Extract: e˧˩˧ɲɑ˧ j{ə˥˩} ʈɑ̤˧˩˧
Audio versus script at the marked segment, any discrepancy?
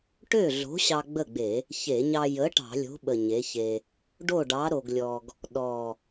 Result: yes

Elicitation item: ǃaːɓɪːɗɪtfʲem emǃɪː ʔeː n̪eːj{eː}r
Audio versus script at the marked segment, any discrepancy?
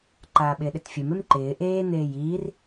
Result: yes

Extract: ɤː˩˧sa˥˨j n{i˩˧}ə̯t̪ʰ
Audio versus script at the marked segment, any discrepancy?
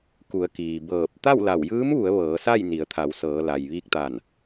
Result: no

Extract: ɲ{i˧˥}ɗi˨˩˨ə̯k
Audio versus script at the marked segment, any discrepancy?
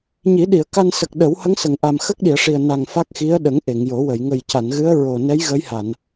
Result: yes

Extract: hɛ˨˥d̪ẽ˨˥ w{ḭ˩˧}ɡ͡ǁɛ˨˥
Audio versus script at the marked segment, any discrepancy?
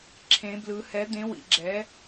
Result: no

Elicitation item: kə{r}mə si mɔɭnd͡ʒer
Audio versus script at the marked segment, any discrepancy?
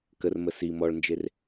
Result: no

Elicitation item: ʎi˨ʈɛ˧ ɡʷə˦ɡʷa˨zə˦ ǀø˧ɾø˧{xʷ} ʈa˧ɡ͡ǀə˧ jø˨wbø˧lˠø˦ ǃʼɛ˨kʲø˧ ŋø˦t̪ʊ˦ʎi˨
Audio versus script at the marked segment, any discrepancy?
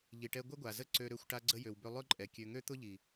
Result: no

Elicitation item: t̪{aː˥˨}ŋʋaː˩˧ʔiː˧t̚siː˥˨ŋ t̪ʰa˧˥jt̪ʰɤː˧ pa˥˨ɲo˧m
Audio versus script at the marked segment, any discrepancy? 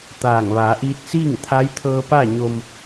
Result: yes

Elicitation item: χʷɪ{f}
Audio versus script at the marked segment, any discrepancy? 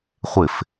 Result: no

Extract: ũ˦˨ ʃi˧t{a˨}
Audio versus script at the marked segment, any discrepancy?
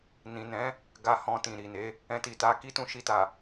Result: no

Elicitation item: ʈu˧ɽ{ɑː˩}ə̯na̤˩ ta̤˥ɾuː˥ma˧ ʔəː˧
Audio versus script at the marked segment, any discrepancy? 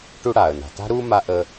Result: yes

